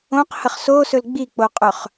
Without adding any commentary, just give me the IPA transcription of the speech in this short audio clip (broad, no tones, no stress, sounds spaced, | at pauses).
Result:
õ q h ə χ s o s ɵ l ɡ͡b i k͡p o qʼ ɵ χ